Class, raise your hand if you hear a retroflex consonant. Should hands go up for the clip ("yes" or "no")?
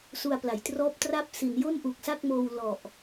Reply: no